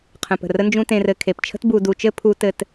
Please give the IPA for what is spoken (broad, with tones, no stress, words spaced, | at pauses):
qʰə̃˨pə̤˩rə˥nd͡ʒũ˦ tẽ˨rɘ˨ kʰe˩pt͡ʃʰə̤˥t bu˨du˨t͡ʃɘ˦ pʰu˥tɘ˦t